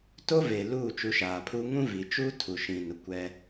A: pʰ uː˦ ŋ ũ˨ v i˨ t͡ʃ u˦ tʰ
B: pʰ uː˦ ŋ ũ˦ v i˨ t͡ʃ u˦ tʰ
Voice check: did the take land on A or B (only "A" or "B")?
B